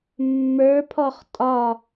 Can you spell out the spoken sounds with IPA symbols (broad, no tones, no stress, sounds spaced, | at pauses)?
mː ə˞ pʰ ɔ χ tʼ ɒ